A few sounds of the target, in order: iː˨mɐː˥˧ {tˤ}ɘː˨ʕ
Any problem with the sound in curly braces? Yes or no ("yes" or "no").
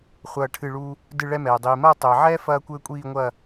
no